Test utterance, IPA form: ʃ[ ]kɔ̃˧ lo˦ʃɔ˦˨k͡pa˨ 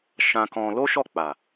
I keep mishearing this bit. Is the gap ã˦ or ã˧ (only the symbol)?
ã˧